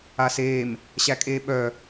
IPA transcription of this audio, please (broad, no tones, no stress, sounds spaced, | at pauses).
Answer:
a s eː m | ɕ æ kʼ eː ɓ œ